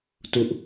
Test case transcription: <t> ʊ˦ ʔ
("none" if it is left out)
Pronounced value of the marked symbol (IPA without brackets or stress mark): t